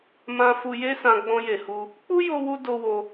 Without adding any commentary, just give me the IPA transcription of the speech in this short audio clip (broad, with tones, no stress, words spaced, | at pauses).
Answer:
mã˧ fu˧je˦sã˧ ɡ͡bɔ̃˧je˨hu˧ | k͡pu˦ jo˦wu˦ do˧wo˧